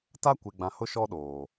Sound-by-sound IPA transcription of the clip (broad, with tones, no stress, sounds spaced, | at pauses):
t a˦ kʷ e˨ ɡ͡b ã˨ h ʊ˦ ʃ ɔ˦ ɗ oː˨